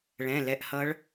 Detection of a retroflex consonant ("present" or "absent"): present